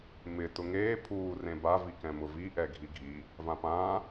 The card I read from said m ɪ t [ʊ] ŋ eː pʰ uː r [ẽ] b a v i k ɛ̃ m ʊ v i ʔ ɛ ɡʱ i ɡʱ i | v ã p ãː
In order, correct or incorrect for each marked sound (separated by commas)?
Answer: correct, correct